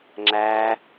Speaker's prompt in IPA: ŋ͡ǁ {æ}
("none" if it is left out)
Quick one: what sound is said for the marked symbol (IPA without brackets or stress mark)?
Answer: æ